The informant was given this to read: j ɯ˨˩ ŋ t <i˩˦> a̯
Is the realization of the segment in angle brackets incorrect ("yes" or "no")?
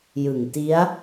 yes